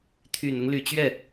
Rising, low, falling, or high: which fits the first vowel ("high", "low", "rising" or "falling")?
low